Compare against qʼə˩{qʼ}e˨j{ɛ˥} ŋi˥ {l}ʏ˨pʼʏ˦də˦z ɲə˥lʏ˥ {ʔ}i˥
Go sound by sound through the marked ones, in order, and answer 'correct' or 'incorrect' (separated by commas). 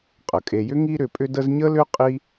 incorrect, incorrect, incorrect, incorrect